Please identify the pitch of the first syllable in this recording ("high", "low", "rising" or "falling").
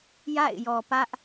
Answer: falling